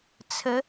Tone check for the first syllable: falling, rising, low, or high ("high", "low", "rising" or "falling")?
rising